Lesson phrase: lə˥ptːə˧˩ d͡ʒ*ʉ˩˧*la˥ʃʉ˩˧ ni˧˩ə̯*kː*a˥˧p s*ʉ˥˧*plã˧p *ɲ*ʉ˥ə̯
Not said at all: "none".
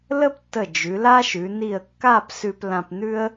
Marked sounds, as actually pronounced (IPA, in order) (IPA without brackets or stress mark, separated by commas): ʉ˩˧, kː, ʉ˧, n̪